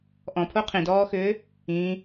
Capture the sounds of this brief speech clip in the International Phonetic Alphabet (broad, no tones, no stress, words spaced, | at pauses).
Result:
ʔɔ̃pʰo qʰĩdɔːxʏː | ĩ